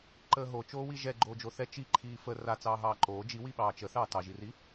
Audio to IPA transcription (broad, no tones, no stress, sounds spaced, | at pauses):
ǃ əː ɦ o t͡ʃ oː w i ʒ ɛ ɡ͡ǃ oː d͡ʒ o θ ɛ t͡ʃ i ǃʰ iː f ə r a t͡s ɑː ɦ ɑː ǃ oː d͡ʒ i w i ɓ ɑː t͡ʃ ə θ ɑː t ɑ ʒ i r i